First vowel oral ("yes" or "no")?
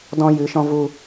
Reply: no